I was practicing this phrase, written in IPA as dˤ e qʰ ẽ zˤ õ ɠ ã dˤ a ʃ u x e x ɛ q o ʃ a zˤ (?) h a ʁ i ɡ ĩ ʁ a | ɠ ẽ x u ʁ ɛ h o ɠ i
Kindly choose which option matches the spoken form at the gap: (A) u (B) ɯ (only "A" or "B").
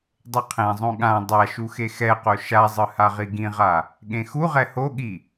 B